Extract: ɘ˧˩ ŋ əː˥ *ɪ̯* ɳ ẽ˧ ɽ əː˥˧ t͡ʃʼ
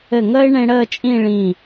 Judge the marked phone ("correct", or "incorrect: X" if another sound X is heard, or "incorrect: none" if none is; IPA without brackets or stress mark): correct